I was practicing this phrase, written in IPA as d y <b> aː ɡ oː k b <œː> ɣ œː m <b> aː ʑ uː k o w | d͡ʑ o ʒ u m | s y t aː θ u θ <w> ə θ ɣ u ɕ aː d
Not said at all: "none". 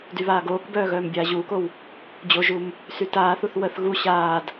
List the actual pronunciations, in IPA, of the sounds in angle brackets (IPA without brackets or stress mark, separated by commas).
β, œː, bʲ, w